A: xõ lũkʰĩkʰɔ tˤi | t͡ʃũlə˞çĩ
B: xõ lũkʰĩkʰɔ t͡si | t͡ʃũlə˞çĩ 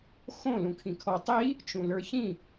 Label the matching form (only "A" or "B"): A